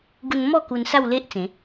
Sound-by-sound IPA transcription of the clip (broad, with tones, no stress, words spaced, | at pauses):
ɡu˧nmɔ˥˧ ku˧nsa˥˧w le˦ʔ t͡sẽ˨˦